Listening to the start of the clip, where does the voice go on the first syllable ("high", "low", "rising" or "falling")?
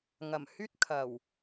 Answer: low